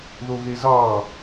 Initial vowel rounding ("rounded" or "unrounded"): rounded